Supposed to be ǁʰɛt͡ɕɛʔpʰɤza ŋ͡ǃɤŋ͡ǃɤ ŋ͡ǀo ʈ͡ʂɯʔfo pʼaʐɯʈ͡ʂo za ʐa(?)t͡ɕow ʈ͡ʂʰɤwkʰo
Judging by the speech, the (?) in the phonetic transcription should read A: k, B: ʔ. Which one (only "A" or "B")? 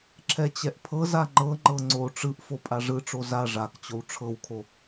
A